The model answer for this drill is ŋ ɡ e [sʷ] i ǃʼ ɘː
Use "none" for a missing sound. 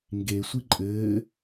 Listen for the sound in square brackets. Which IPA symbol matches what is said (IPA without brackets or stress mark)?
sʷ